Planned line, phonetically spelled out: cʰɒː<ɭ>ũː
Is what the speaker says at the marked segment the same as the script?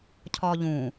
no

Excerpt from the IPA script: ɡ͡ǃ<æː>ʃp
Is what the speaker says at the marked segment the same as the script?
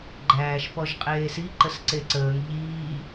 yes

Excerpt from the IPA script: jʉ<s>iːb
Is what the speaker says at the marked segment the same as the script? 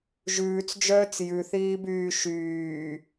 no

